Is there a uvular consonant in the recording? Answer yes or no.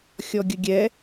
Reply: no